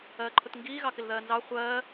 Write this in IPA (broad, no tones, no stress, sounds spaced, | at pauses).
ɜː ǃʰ ʊ t ŋ ɡ iː ɣ ɑ k ɪ l ð ɜː n z ɑ χʷ ɜː